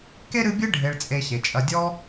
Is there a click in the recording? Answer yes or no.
no